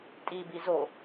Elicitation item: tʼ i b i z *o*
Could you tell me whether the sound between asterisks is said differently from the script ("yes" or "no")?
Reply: no